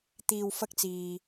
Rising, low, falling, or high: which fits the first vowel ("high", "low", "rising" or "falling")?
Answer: low